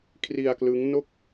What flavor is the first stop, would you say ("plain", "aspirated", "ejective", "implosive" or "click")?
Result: aspirated